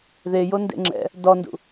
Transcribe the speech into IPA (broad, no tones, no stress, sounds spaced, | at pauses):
ð e j o n d ḛ ŋ͡ǁ ɛ̰ | d ɔ n d ṵ